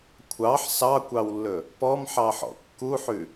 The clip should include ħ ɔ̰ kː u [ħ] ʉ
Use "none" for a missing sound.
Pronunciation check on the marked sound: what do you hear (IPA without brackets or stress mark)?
ħ